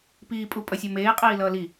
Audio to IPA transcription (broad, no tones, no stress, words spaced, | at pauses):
piːpʼupʼʌsʲʌ meːqʼiːlʌː li